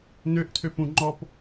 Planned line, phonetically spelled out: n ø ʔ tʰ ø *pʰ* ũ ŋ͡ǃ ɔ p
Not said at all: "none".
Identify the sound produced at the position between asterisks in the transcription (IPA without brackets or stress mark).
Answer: p